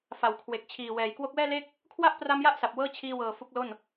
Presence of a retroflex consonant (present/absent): absent